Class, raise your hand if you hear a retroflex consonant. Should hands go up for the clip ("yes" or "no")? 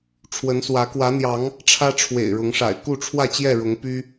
yes